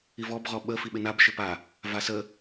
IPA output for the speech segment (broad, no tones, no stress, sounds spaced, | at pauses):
i v ɔ b ʁ ɔ ɓ ə f i ɓ ɪ n a b ʃ ɪ p a | v a s ə